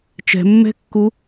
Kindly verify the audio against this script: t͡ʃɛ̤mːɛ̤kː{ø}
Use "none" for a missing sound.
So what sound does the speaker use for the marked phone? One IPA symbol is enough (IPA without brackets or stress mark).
u